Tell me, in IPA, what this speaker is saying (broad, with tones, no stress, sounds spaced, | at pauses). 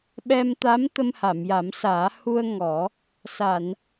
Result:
ɓ ɛ˧ m t̪ a˧˥ m t̪ ə˧ m h a˨˩˨ m j a˨˩˦ m s aː˨˩˦ h u˧ ə̯ ŋ ɔ˨˩˦ | s a˨˩˨ n